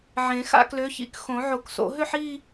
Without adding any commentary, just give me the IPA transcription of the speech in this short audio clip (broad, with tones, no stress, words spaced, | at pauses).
ʕẽ˨˩˦ xa̰˥˧klø˨˥çḭ˥˧k xõ˨˩˦ʕo˨˩˦kso̰˨˩˦ ɦø˥˧ħ i˥˧